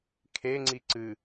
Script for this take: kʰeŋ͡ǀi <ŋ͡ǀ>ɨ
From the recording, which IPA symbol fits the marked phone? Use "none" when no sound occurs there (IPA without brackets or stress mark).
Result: ǀ